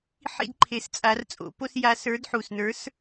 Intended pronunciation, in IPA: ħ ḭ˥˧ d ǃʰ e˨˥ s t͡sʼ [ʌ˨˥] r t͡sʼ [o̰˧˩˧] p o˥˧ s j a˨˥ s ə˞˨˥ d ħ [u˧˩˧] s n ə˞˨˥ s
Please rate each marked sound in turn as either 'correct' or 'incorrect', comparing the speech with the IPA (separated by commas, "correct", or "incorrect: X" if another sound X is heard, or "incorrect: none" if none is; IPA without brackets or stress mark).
incorrect: a˨˥, correct, incorrect: u˨˩